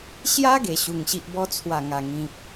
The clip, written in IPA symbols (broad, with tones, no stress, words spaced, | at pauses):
ɕja˦ ɡe˨˩ɕu˨˩ŋ ɕi˨ʔbɔ˧ t͡sʰwa˨˩ŋa˨˩ ŋĩ˨p̚